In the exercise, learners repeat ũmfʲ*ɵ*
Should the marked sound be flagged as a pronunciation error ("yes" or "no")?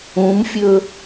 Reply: no